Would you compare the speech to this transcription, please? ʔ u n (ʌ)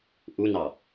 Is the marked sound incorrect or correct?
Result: incorrect